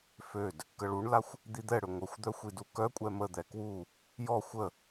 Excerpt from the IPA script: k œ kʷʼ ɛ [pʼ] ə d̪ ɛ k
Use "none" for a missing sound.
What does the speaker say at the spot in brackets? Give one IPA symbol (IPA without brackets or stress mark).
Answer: m